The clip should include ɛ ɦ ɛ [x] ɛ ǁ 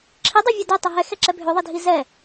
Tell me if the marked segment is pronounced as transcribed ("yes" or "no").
yes